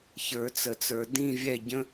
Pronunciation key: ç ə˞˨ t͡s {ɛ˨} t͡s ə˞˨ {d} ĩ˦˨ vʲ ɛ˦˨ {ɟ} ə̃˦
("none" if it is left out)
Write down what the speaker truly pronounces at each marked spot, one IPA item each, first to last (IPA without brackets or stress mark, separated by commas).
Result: ə˨, d, ɟ